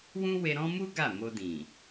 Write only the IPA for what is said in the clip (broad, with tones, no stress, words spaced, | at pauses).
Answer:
wũ˦we˧ɾɔ̃˦ mu˦ ɡa˦˨mo˧dĩ˨